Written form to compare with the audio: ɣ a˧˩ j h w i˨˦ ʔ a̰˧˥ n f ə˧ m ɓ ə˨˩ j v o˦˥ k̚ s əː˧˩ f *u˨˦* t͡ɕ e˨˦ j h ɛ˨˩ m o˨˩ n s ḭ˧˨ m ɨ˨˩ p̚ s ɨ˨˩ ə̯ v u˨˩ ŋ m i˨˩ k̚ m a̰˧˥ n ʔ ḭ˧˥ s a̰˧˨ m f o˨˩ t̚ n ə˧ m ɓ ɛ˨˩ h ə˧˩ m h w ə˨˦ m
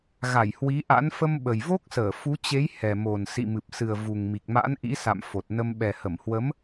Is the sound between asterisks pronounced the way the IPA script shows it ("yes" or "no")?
yes